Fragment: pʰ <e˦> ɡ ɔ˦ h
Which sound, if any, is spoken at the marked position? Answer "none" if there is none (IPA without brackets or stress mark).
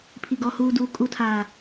i˦